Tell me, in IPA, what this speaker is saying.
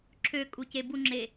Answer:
ǁʰ ø kʼ u c e b u ŋ͡ǁ e

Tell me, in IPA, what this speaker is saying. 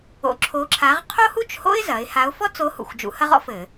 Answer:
o̰˨˥ ǁʰ o˨˥ ǁʰ a˨˥ ʁ qʰ o˥ h u˥ t͡ʃ h o̰˥ ɪ̯ z ɐ˩˧ ɪ̯ h a˨˥ ʊ̯ f ɔ˥ t͡s o˨˥ h ṵ˨˩ xʷ d͡ʒ ṵ˨˥ h ɐ˥ ʁ ɔ̰˥ f ɘ˧˩˧

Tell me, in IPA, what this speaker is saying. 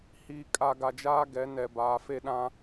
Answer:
h iː˨ kʼ a˨ ɡ a˨ d͡ʒ aː˦ ɡ ɛ˨˦ n ɛ˨ b aː˨ f e˦ ɗ ã˦

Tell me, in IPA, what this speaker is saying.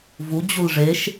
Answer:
v u d͡ʑ u l ʐ e ʃ

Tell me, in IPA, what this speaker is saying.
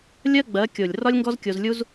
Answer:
lʲ ɜ˦ ɡ͡b ɜ˨˦ kʲ o˨ lʲ r ɒ˦ lʲ ŋ ɡ ɔ˦ z kʲ o˧ z lʲ u˦ z

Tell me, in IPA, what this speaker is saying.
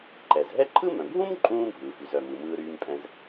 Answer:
ǃ ɛ˩ z ɦ ɛ˥ ǃʰ ɯ˥ m œ̃˩ bʱ ũ˥ m ǃʼ ũː˥ bʱ ɯː˩ f y˩ z œ˩ m ɯ˩ m ɯː˧ ɾ yː˧ m pʼ ɛ̃˧ z

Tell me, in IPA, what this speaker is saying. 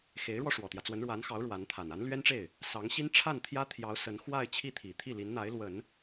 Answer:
x e˧˥ ɪ̯ ɻ w ɔ˧ ʂ w ɔ˨˩ t̪ j ä˦ t͡s w ə˧˥ n ɻ w a˧˥ n x ɑ˧˥ ʊ̯ ɻ w a˧˥ n t̪ʰ a˨˩ n a˧˥ n l ɥ ɛ˥ n ʈ͡ʂ e˥˩ ɪ̯ | s ɑ˧˥ ŋ ɕ i˥ n ʈ͡ʂʰ a˥˩ n t̪ʰ j ä˥ t̪ʰ j ɑ˧˥ ʊ̯ s ə˧˥ n x w a˥˧ ɪ̯ t͡ɕʰ i˥˩ t̪ʰ i˨˩ t̪ʰ i˥˩ l i˧˥ n n̪ a˧˥ ɪ̯ l w ə˨˩˦ n

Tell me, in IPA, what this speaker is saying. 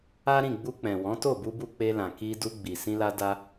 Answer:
a˦ ɾ ĩ˦˨ ɡ͡b u˧ k͡p ɛ̃˨ w ɔ̃˨˦ t o˦˨ b u˧ b u˧ k͡p e˧ l ã˨ k i˧ d u˧ ɡ͡b i˨ s ĩ˧ l a˧ d a˦

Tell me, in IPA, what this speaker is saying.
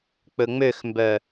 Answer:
k͡p ɵ ŋ͡m ø x m b œ

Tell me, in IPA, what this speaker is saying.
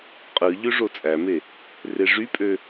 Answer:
qʼ ɯ ʎ ø ʐ o t͡sʼ æ m e | r e ʐ y pʼ ø

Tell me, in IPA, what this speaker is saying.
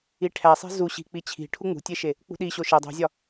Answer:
i ʈʰ æ sˤ e̤ z u ɕ i̤ k͡p i t͡ɕʰ i̤ ʈʰ u ŋ͡m ṳ tʲ e ʃ e | k͡p ṳ ɗ i ɕ o ʃ e dˤ ṳ zʲ ɒ

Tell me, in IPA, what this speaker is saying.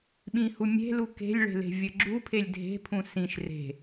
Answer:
ɓ ĩ h u mʲ e̤ l u k e̤ lʲ ɭ e̤ l e̤ vʲ ɘ ɡ͡ǁ u pʰ e lʲ dʱ e̤ pʰ ũ s ĩ ʃ r e̤

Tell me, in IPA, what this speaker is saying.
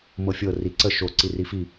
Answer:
m ɤ fʲ ɤ r i ǀ ə ʃ o ǀ i r i f i

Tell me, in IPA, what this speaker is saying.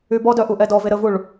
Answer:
y b ɔ d œ ʔ u ʔ ɛ d ɔ v e ɾ ə v u ɭ

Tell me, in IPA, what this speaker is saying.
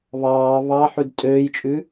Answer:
β ɑː β ɑ ħ ʉ d tʼ øː j t͡ʃʼ ʉ

